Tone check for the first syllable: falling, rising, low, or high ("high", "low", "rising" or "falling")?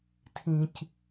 low